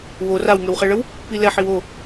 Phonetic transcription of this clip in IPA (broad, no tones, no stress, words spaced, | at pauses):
wor awŋøwχɛɭəw | pilɛħ iwo